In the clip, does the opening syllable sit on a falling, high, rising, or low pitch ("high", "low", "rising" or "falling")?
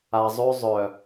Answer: low